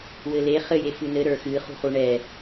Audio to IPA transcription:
wɘle χɘje fɨnɘ ɾə˞xɨ χṳχuɳɛ

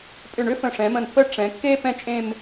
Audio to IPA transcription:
pʼʏ˧˩ɳʏ˥ fə̃˧˩ʂɛ̃˩˧mə̃˧˩npːə˥˧ ʈ͡ʂɛ̃˩˧kːe˥ pɛ̃˥t͡ʃʼẽ˥˧m

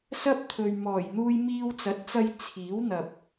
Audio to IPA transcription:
sɐ˥p̚t̪ʰɵ˨ɥmɔː˨˩j n̪uː˧jmiː˧wt͡sɐ˨˥t̚t͡sɐ˧j t͡sʰiː˨˥wn̪ɐ˨p̚

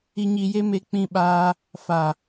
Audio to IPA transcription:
i˧ɲi˧je˦ me˧k͡pĩ˧ɓaː˧ | fa˨

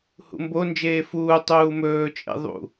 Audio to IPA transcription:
hṵmbond͡ʒeː fuː tˤuːmɵːt͡ʃʼḛ ðˤṵ

